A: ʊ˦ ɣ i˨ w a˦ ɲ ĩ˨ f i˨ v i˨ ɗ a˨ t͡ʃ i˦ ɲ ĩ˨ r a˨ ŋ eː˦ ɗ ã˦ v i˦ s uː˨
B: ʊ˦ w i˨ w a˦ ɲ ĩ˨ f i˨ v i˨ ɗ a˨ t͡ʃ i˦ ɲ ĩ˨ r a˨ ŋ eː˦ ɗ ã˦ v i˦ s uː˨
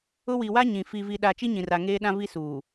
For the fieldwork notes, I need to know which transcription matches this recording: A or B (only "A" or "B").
B